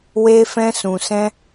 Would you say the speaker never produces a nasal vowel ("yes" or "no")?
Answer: no